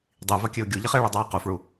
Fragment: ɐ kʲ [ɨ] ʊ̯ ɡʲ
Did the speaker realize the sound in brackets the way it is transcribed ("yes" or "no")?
yes